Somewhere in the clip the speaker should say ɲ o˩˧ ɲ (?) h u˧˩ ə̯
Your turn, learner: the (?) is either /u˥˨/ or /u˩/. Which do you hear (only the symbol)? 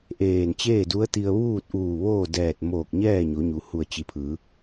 u˩